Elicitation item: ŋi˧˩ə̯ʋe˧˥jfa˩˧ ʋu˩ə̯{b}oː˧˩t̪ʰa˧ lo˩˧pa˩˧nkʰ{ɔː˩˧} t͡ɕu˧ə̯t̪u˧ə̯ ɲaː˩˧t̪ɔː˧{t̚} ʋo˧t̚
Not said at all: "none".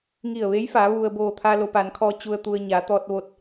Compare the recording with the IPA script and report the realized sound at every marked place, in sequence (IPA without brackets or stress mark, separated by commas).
b, ɔː˧, t̚